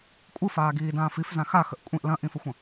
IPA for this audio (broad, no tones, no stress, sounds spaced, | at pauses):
kʷʼ ɯ f aː ɡ iː d ãː f i f z ã x a x ə ʔ kʷʼ ĩ ʔ l ɐ̃ ʔ ĩ f ə xʷ ə̃